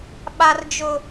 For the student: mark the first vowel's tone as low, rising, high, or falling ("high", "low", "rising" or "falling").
high